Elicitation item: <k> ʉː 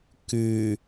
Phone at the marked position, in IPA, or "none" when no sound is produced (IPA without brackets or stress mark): k